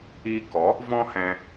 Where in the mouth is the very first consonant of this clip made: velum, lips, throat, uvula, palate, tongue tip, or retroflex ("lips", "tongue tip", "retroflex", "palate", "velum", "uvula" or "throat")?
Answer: velum